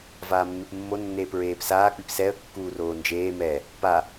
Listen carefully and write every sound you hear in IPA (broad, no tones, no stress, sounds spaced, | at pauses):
v aː mː e p mː o nː eː p ɹ eː p s aː k͡p i p s ɛ ə̯ kː uː r oː n d͡ʒ eː m ɛ | p a